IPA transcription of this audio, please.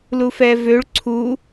lufɛvøɭ ǀʰu

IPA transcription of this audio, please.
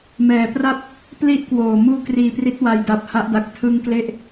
mɛː˨˩pra˥˩p̚ | pli˥˩ʔkwoː˨˩ muː˥˩kriː˧pri˦˥t̚ wa˧jda˨˩p̚ ha˦˥ʔda˨˩k̚ tʰɯ˧ŋkle˦˥ʔ

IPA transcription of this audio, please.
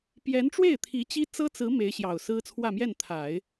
pjɛ˧˥nʈ͡ʂwe˥˩ɪ̯t̪ʰi˧˥t͡ɕi˥ t͡sɤ˥t͡sɹ̩˧˥ me˧˥ɪ̯ɕjɑ˨˩ʊ̯sɹ̩˥ t͡sʰwä˥˧mjɛ˥˩n t̪ʰa˨˩˦ɪ̯

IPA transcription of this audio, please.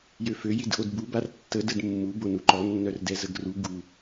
jøfø jidʔodbu bartːə dədmːu bonuǃɔ nːœrdɛzəɡru ɡu

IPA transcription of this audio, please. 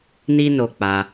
ni˦ no˧k͡pa˧

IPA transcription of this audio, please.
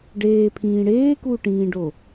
ɖeːpʰĩː ɽeːkuːʈĩːɖo

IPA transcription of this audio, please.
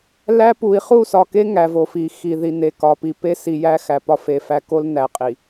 læ˦pu˨i̯ χu˦˨sɒ˨ke˦ ŋæ˨vo˨fi˨ xi˨ ði˨ne˨kɒ˨pi˨ pe˦si˨jæ˦ xæ˨pɒ˦fe˨fæ˦ ko˦lnæ˨qʼi˨

